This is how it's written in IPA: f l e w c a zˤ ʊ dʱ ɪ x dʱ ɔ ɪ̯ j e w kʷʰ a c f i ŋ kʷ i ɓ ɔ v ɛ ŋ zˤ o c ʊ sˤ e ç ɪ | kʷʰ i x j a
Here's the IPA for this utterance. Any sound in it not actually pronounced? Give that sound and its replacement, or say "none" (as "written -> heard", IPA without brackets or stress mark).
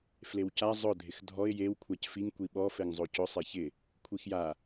v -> f